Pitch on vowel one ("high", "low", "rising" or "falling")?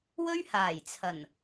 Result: high